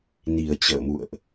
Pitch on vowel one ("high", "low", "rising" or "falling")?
low